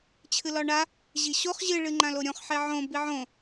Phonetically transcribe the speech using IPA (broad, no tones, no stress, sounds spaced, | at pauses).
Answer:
t͡ɕʰ ɨ l ɒ ɳ a | ʑ i ɕ o χ ʑ ɨ ɭ ɨ ŋ͡ǃ ã l o ɾʲ õ χ ħ e ʕ õ b i ʕ õ